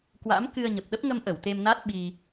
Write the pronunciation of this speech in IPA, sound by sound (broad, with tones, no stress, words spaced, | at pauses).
kwa̰˧˥mkɨ˧ə̯ɲə˨˩p̚ɗə˦˥p̚ ŋə˧mʔə˧˩w t̪e˧mna˦˥t̚ɓi˧